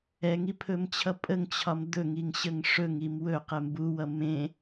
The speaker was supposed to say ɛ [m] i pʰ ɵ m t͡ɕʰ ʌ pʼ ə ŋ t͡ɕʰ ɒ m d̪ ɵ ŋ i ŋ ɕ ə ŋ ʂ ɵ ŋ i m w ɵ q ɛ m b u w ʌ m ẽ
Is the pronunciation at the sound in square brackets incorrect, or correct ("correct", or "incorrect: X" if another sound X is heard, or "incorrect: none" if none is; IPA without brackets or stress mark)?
incorrect: ŋ